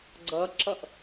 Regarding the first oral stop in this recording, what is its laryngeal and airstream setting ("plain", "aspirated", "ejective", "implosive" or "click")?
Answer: click